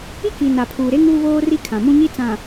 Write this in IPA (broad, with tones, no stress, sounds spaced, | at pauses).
i˦ k i˨ n a˨ pʰ uː˨ ɾ e˦ ŋ uː˦ β oː˦ r i˦ kʰ ã˨ m ũ˦ ɲ i˦ t͡s ã˨